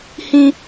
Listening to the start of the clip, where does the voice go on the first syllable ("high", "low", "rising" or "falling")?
high